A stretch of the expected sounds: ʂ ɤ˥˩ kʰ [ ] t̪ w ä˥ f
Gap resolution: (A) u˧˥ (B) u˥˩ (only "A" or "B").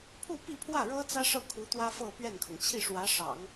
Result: A